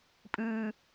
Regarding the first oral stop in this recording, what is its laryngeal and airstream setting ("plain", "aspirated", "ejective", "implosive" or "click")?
ejective